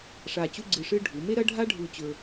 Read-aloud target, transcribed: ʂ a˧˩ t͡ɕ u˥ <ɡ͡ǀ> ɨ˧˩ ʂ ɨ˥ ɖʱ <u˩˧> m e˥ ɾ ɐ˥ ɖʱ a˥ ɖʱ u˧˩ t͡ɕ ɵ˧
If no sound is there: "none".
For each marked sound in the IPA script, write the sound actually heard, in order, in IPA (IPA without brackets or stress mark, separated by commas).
ɡ͡ǀ, u˩˧